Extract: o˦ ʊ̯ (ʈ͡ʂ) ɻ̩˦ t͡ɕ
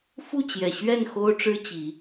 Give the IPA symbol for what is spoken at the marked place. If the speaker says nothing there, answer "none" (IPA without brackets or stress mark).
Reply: ʈ͡ʂ